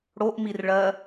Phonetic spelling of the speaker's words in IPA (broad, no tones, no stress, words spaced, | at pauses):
ɽoʔmirɭɜ